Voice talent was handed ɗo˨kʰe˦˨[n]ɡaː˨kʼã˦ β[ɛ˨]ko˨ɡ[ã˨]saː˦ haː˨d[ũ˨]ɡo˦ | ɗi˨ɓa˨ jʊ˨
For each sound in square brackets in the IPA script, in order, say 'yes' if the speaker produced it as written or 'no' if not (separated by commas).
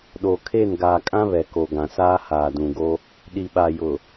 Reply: yes, yes, yes, yes